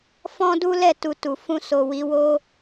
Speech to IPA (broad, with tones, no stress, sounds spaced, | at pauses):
f ɔ̃˦ d u˦ l ɛ˦˨ t u˨ t u˨ f ũ˧ s o˨ w i˨˦ w o˦